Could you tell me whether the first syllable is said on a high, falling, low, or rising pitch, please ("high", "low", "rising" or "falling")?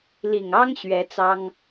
low